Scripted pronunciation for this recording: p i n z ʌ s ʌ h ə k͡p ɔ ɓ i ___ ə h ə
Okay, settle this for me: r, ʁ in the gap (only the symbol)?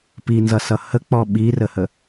r